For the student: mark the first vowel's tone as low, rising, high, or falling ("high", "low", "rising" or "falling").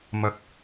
rising